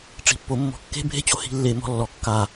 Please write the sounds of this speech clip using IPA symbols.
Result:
ʈ͡ʂ i̤˨ pː o˨ mː ɔ̤˨ kː e̤˦ bʱ e̤˦ t͡ɕ o˨ h i̤˦ lː e˦˨ m ɔ̤˦ lː ɔ˨ kː a˦˨

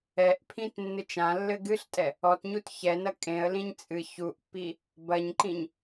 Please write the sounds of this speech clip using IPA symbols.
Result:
ɛ ʔ pʰ ĩ t nː ɨ t͡ʃ ã lː ɘ ɡ ɨ ɬ tʼ ɛ | ɔ t ɲ u t ç ɛ n ɐ kʼ ẽ ə̯ l ĩ ɲ t͡sʼ ɨ ç u ʔ pː i | b ɐ ɲ ǃ ĩ ɲ

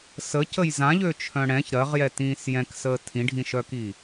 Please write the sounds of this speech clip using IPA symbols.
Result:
s ə c ə j z ã ʎ ø t͡ʃʰ œ̃ ɽ ɛ̃ ç ɾ ɜ ʁ j ɛ t ĩː s j ɛ̃ k s əː tʰ ĩ ɖʱ ĩ ʃ œ k iː

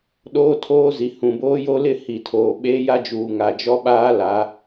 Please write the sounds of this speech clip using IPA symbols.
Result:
ɗ oː˦ tʰ oː˦ z i˨ h ũ˨ b oː˦ j o˦ l ɪ˦˨ h i˨ tʰ oː˨ ɓ eː˦ j a˦ d͡ʒ uː˨ ŋ a˨ d͡ʒ ɔ˦ ɓ aː˦ l a˨˦

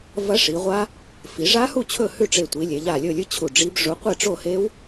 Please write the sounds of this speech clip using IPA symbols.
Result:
v ɐ˦˥ ʂ i˩˧ ʁʷ a˦˥ | f i˩˧ ʐ a˦˥ h u˥˨ t͡ɕʰ ɵ˥˨ h ʉ˥˨ ʈ͡ʂ e˧˩ tʷ i˩˧ lʲ e˩˧ ʎ a˧˩ lʲ ɵ˥˨ lʲ ɨ˦˥ t͡ɕʰ u˧˩ ɖ͡ʐ i˦˥ b ʐ u˨˥ qʷ e˥˨ ʈ͡ʂ o˥˨ h e˦˥ w

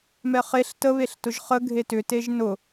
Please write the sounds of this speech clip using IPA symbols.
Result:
m ɛ χ e ɬ t ə β e ɬ t ʊ ʒ χ ə ɡʱ e t ʏ t e ʒ n ʊ

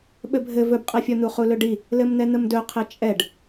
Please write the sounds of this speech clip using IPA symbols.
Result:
ɓ ɘ bʱ ɘ v ɵ b qʼ ɛ fʲ ɔ n̪ u χ u l ɵ ɖ i | l ɘ m n̪ ɛ n̪ ə m d ɵ qʰ ɘ t͡ʃʼ ɛ ɖ

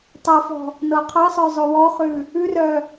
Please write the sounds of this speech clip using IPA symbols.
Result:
tˤ a f ɔ̤ | n ɤ qʰ ɤ sˤ œ zˤ o w ɔ χ ʉ | ʉ r œ

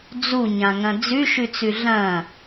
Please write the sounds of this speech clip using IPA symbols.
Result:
d͡z u ɲ ã ŋ ɐ̃ d͡z ʉ ʃ ʉ t͡s ʉ ɮ ɐ̃

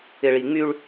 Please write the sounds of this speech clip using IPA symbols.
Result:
ɪ˨ ɭ i˨ ŋ͡m y˦ ɭ

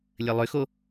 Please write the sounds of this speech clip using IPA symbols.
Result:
lʲ ɘ lˠ ʏ x o

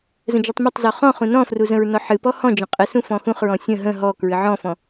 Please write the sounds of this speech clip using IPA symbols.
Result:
z ə̃ d͡ʒ u tˤ m ə tˤ z ɔ χ ɔ̃ χ ũ n ɔ̃ f r u z ə̃ ɹ n ɔ ħ ɨ p ɔ h ɔ̃ d͡ʒ ə̃ qʼ ə s ũ f ɔ̃ x ũ χ ɹ ɔ̃ sʲ ə̃ ɦ ə̃ ɦ ɔ k ɹ ɨ ʕ ɔ̃ f ɔ̃

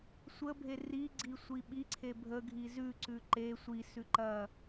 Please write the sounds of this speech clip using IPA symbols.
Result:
sʷ ə bʱ e r i ɡ͡ǀ i sʷ i ɓ i ǀʰ e bʱ ə ɡʱ i z ʉ ǀ ʉ ǃ e sʷ i s ʉ ǃ ɐ

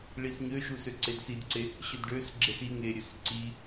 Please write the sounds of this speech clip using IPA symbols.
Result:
ɭ i s ɲ ø ʃ u s ø ǀ e d s i d ǀ e | ɕ ø d ɖ ø s ɡ͡ǁ e s i ŋ e ɾʲ ø s ǀ i

